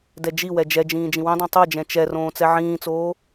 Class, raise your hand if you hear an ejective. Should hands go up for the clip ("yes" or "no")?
no